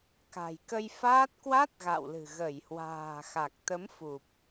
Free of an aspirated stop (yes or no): yes